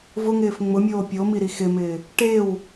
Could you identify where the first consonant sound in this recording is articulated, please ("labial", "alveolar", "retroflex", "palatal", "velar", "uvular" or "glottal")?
labial